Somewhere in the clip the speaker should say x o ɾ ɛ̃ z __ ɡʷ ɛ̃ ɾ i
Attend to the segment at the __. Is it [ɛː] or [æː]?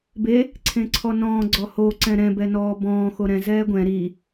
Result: ɛː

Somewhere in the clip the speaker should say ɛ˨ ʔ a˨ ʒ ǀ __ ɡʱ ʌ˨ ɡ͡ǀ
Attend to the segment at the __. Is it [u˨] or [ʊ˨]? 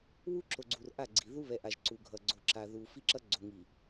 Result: u˨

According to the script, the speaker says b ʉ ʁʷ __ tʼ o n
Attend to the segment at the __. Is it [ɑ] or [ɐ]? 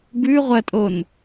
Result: ɐ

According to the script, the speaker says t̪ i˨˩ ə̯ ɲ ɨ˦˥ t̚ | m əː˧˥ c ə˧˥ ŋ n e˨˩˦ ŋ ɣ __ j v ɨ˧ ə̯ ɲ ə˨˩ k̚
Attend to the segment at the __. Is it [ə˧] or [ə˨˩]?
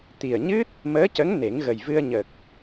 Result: ə˨˩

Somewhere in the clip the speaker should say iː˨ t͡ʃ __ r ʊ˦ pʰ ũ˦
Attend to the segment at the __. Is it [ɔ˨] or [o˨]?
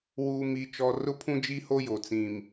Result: ɔ˨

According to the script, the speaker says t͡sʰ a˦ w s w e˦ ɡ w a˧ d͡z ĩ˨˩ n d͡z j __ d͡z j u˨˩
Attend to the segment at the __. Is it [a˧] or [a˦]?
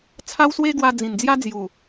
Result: a˦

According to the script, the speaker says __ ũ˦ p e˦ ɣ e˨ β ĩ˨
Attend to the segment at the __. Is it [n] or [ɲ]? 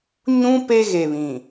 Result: ɲ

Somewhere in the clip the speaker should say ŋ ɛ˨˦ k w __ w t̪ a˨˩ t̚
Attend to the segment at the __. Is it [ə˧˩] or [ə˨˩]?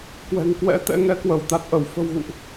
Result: ə˧˩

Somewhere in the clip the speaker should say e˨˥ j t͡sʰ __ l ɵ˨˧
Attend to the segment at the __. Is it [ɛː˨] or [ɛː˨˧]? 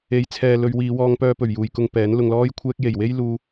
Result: ɛː˨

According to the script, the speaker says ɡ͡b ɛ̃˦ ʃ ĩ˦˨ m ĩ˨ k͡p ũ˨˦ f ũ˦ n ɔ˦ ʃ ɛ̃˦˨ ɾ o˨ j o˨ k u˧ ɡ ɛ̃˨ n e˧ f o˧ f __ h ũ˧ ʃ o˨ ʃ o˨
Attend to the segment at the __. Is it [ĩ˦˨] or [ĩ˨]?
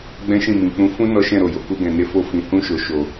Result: ĩ˨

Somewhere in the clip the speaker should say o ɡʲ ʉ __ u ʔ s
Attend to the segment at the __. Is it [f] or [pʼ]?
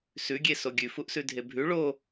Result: f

